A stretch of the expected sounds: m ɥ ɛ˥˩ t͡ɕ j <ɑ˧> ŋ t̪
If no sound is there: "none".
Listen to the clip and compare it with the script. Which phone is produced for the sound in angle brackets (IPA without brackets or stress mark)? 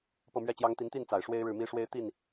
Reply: ɑ˥